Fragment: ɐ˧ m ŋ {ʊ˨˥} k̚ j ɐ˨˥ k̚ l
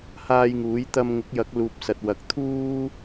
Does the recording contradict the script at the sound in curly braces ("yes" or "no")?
no